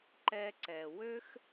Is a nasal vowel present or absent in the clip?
absent